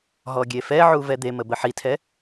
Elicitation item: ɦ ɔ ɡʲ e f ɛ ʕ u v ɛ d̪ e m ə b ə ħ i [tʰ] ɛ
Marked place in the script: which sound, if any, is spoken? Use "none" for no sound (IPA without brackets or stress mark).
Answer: tʰ